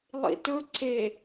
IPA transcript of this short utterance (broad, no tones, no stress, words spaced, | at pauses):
lˠḭtɵ ǀe